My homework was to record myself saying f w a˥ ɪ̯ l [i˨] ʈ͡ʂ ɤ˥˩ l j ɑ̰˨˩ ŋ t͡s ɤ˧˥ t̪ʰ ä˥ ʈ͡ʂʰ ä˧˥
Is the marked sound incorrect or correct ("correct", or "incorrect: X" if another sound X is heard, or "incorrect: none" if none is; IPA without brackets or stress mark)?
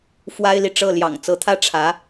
correct